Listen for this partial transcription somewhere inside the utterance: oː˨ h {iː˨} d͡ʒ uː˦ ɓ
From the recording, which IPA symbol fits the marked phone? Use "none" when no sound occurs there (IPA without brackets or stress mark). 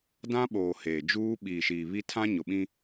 eː˨